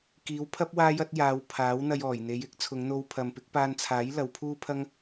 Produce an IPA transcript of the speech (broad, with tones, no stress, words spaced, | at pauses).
kiː˨˧wpʰɐ˥p̚ waː˥jɐ˥t̚jaː˨˧w pʰaː˨˥wn̪ɐ˧jɔː˨˩j n̪e˨˧jɪ˥k̚ t͡sʰʊ˨˧ŋn̪o˧wpʰɐ˨mpɪ˨˥k̚ paː˧nt͡sʰaː˨˥j lɐ˨˧wpʰuː˥pʰɐ˥ŋ